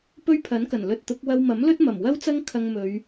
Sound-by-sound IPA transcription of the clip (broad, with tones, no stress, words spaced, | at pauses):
pɵ˥ɥpʰɐ˨˥nkɐ˨˩n lɵ˧t̚t̪ʊ˨˥k̚ wɐ˧wmɐ˨˥mlɵ˥t̚ mɐ˨˩m wɐ˥wt͡sɐ˥ŋ kʰɐ˧ŋmɵ˨˧ɥ